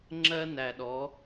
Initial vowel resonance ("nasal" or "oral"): oral